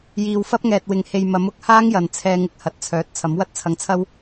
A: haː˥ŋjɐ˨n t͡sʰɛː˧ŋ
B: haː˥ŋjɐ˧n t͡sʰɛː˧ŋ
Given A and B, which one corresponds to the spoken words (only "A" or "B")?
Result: A